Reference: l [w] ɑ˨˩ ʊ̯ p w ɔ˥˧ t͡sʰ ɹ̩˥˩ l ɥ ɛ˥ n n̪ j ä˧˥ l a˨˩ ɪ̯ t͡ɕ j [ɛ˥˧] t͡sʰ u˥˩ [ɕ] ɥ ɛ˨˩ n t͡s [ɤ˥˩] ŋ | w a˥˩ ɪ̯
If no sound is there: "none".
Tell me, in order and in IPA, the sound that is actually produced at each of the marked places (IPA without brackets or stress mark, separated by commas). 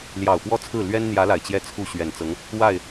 j, ɛ˥˧, ɕ, ɤ˧˥